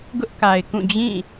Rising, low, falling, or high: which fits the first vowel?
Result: high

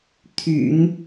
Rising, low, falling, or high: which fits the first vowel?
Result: low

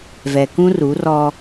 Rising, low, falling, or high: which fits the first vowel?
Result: low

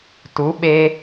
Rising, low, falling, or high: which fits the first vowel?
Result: rising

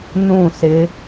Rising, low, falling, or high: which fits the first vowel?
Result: falling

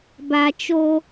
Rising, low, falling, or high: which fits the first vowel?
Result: low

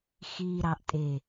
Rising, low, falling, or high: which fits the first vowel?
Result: low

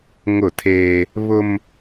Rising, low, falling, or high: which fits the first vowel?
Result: falling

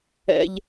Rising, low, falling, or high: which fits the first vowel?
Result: high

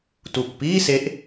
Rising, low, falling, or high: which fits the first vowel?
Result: low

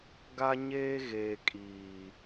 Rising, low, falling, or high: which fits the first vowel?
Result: high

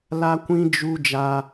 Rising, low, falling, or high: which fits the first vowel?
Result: high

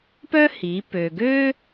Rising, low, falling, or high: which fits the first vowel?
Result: high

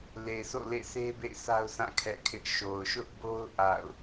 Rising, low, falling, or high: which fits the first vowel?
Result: low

